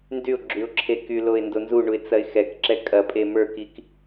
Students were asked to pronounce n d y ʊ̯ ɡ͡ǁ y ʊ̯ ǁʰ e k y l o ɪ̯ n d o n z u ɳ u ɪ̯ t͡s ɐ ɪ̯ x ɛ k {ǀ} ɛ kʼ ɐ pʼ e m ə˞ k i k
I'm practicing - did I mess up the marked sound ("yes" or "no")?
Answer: yes